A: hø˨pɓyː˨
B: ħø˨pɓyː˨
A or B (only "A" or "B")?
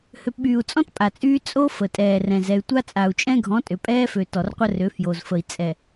A